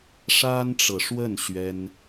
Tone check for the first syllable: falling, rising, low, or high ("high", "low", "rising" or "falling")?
high